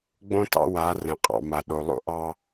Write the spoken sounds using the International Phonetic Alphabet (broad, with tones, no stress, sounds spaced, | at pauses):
ɡ͡b õ˦ t ɑ̰˦ w a˨˦ r ɛ̃˨ qʼ ɑ̰˨ m a˨ ɗ o˨ lˠ o̰˦ ʔ ɑ˦